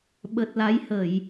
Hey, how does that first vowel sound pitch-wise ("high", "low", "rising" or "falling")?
low